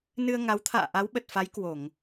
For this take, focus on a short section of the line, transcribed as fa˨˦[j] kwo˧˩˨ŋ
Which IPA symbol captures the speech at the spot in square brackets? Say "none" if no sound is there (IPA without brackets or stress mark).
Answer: j